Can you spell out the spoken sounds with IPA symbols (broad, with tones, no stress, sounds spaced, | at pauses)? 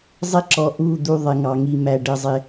zˤ ɪ˦ ǁ ɔ˨ ʔ u˦˨ d̪ u˧ ðˤ ɪ˨ ŋ ɑ˨ ŋ i˨ m æ˨ ɖ ə˨ zˤ ɪ˧